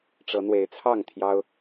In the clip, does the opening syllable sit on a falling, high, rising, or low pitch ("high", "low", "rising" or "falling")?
rising